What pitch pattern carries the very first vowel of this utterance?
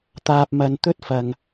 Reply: low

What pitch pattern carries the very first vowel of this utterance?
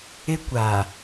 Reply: high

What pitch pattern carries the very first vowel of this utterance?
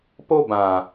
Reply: high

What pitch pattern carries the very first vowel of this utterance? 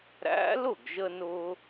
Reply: rising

